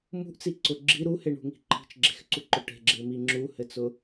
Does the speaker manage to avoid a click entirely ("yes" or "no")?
no